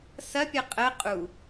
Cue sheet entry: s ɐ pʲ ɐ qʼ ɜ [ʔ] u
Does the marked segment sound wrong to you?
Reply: yes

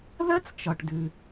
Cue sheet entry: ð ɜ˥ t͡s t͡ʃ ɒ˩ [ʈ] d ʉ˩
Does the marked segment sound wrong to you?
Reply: no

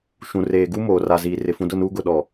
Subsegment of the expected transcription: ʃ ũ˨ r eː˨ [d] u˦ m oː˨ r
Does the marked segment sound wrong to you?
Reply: yes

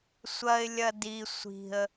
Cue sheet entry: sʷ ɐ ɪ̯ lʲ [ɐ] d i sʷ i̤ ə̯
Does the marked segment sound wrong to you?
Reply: no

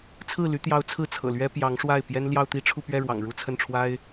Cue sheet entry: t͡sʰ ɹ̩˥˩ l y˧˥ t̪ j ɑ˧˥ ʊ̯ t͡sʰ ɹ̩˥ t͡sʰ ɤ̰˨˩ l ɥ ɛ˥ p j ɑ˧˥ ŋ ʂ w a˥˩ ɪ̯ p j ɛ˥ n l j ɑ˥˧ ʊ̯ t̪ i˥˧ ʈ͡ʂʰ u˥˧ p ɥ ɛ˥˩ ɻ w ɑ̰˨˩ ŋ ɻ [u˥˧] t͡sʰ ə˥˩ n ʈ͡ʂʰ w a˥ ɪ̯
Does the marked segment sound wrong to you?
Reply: no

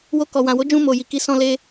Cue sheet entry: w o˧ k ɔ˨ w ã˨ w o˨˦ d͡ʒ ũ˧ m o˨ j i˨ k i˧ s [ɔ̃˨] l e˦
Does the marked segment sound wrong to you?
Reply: yes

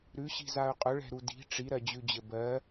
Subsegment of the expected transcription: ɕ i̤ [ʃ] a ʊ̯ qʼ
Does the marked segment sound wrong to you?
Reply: yes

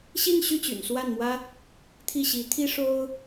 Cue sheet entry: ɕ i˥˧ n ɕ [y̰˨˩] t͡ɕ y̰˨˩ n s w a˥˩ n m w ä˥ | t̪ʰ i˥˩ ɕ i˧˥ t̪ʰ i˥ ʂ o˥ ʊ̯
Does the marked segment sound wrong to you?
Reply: yes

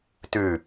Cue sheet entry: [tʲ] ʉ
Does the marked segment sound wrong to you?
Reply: yes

